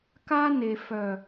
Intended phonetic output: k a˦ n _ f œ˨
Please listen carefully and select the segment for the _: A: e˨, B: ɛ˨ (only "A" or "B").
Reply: A